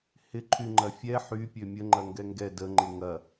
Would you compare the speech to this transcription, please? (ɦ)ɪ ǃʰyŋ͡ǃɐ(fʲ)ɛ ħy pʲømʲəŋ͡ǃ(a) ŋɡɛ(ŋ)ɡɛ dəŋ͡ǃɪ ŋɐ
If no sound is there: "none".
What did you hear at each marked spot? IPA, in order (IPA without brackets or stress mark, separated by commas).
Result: h, fʲ, ɐ, ŋ